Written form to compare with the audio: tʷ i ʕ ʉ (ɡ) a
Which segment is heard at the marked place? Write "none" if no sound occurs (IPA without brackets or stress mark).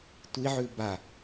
b